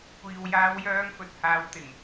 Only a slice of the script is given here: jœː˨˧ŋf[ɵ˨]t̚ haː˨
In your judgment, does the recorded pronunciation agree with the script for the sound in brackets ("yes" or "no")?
yes